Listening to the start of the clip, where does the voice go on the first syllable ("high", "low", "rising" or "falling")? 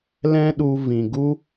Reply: high